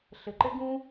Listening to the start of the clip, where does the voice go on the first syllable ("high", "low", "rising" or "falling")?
low